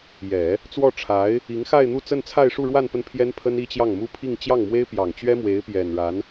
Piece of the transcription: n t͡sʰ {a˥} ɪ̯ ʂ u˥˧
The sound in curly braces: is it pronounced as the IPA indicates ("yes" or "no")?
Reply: no